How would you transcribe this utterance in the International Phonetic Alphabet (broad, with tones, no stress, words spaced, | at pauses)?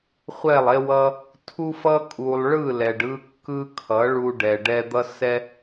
χʷɛ˦˨lˠe˦wʌ˦ | tʰu˦fʌ˦ kʼu˧lˠ ɭɯ˦˨ lɛ˨ɖɯ˧kːɯ˧ kʰʌ˨˦ɭu˧ ɖɛ˨ɖɛ˧d̪ʌ˦sɛ˦